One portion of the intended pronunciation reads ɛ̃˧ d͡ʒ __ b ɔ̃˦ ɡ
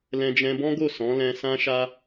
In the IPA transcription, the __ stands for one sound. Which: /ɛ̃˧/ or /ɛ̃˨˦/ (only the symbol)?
ɛ̃˧